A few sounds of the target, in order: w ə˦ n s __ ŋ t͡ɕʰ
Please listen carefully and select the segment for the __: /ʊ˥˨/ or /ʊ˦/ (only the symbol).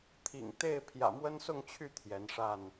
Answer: ʊ˥˨